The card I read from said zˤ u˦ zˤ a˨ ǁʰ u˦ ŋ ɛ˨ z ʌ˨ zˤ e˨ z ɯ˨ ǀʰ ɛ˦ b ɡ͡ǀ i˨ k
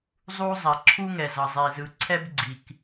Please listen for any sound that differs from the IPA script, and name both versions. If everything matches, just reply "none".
none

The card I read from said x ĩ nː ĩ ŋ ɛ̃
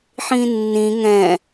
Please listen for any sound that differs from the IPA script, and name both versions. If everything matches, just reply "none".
x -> ħ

